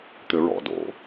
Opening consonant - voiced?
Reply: no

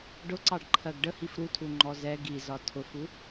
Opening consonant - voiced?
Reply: yes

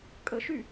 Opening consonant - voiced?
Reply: no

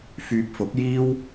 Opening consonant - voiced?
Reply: no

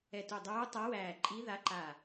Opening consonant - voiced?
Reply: no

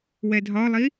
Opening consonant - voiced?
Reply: yes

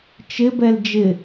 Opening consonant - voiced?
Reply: no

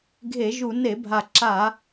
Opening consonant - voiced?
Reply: yes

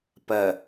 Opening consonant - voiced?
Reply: no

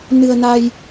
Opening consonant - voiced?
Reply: yes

